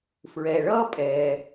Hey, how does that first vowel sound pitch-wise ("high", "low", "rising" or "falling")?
low